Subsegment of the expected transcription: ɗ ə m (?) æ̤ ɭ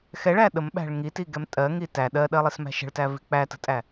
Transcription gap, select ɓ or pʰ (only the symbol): ɓ